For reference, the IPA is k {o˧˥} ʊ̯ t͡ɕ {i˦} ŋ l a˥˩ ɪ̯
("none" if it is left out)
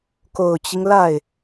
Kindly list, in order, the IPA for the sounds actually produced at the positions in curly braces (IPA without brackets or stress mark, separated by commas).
o˨˩, i˦